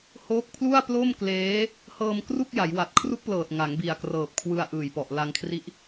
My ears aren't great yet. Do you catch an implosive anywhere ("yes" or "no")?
no